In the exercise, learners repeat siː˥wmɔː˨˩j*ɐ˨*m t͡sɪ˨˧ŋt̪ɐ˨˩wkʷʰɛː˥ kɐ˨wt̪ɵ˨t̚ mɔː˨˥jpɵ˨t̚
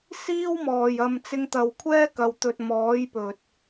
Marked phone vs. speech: correct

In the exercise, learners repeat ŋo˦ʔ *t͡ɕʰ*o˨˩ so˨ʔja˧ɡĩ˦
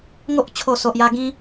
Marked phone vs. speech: correct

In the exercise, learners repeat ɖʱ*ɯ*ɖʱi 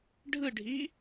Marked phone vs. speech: correct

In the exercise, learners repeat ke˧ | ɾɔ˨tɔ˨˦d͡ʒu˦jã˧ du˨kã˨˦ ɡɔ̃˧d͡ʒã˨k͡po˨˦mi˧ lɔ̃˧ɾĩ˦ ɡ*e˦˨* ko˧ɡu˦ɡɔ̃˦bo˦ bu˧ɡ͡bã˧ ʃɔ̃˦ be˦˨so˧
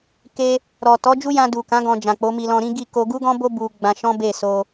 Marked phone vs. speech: incorrect: i˦˨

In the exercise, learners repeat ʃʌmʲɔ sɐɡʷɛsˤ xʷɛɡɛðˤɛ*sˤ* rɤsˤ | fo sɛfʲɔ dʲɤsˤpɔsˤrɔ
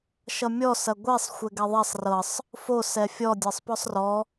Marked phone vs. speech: correct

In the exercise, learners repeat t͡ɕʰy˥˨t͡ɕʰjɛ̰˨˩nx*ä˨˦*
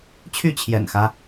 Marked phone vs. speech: incorrect: ä˦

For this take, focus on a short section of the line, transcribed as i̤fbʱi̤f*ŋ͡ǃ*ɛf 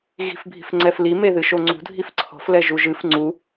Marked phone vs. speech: incorrect: ŋ͡ǀ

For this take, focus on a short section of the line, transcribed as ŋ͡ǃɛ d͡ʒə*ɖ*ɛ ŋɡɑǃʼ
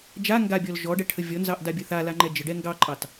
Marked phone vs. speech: correct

